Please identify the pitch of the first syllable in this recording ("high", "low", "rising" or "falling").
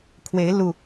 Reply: rising